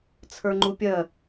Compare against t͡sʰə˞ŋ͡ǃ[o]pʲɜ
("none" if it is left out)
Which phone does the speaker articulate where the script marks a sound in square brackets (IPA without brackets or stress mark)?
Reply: u